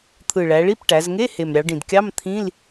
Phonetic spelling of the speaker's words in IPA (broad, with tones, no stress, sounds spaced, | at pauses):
t̪ʰ ɯ˨˩ ɭ æ˩˧ ɭ i˧˥˧ p ʈ æ˩˧ z ŋ e˧˥˧ h e˨˩ m ɾʲ ɑ˩˧ ɖ ĩ˨˩ d kʲ ɑ˧˥˧ m t̪ʰ ĩ˧˥˧ l